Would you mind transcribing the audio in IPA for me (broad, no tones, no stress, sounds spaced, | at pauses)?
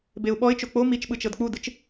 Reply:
b e ʊ̯ ɓ ɔ ɪ̯ t͡ʃ o k͡p o m i t͡ʃ ɓ ɯ t͡ʃ ɤ d k͡p u d ɯ t͡ʃ